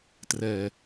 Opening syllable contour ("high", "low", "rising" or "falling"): low